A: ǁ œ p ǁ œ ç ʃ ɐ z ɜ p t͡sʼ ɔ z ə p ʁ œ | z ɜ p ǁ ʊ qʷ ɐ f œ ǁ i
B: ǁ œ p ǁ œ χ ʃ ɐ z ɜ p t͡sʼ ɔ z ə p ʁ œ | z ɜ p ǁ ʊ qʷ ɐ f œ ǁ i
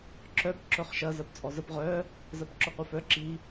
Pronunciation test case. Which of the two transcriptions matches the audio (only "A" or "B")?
B